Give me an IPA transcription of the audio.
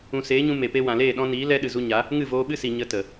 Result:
ũ˨ s eː˨˦ ɲ ũ˧ m e˨ p e˧ w ã˨ l eː˦˨ ɗ ɔ̃˧ n iː˨˦ l ɛ˧ ɗ ɨ˨ z u˧ ɲ a˨˦ | ŋ ɨ˦˨ v oː˧ ɓ ɨ˦ s i˨ ɲ ə˧ t ə˨

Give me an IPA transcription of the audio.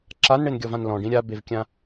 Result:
ǁ a n ɳ e n ɡʲ ɔ v ã n l ɔ̃ ɖ ĩ ɾʲ a b e v kʲ ã

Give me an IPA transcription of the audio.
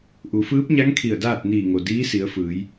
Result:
ʔ u˩˧ f ɯː˧˥ p̚ ɲ a˧˥ ŋ kʰ i˧˩ ə̯ d aː˥˨ t̚ n iː˧˩ ŋ o˩ d iː˧˥ s i˩˧ ə̯ f ɯː˩˧ j

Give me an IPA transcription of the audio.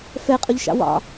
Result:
f ɛ qʼ ʊ ʎ ʃ ɑ̰ w ɑ̰

